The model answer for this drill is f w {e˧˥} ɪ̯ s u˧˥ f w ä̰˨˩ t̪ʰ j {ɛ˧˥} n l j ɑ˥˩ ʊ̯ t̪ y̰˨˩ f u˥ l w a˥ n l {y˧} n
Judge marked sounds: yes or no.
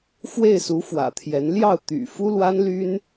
no, yes, no

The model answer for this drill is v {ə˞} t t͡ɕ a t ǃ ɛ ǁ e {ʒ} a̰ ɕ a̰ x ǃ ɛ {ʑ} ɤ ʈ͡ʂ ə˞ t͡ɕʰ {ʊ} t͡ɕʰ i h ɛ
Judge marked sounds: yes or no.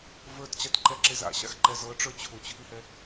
yes, no, no, yes

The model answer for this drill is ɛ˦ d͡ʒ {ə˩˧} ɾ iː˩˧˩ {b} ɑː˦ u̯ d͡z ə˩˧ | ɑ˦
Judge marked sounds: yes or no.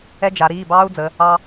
no, yes

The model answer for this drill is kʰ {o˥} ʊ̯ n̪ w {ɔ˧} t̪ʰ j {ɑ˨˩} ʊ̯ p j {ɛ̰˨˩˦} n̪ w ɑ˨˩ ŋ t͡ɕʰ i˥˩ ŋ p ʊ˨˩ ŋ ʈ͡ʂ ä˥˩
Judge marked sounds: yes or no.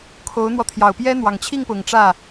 no, yes, yes, no

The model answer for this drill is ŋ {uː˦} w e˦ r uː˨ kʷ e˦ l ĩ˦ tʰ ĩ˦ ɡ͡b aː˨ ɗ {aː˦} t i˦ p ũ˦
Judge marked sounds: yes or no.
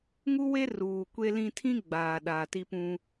no, no

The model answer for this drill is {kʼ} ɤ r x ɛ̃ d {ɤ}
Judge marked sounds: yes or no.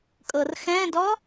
yes, no

